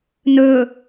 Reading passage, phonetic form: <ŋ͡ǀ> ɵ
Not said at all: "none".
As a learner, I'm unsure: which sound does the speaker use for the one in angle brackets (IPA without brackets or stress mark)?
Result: n